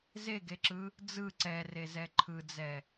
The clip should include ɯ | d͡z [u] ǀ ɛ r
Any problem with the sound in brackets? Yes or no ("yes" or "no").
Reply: yes